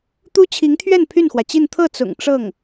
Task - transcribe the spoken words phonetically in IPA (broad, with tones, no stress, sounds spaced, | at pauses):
t̪ u˥ t͡ɕʰ i˧˥ ŋ t̪ʰ ɥ ɛ˥˧ n pʰ y˥˩ n x w ä˩ t͡ɕ i˥˧ n t̪ʰ ɤ˥˩ t͡s ʊ̰˨˩ ŋ ʈ͡ʂ ɤ˥˩ ŋ